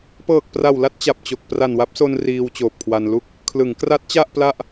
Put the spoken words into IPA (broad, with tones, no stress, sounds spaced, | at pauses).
p ɤː˨˩ k̚ p r a˨˩ w l a˥˩ t̚ t͡ɕ a˨˩ p̚ t͡ɕ o˨˩ k̚ p r a˨˩ n w a˦˥ p̚ s o˧ n r iː˧ w t͡ɕ oː˨˩ p̚ kʰ w a˧ n l u˥˩ k̚ | kʰ l ɯ˩˦ ŋ k r a˦˥ t̚ t͡ɕ a˥˩ ʔ p l a˥˩ ʔ